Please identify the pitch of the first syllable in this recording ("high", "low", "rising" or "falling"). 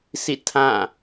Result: falling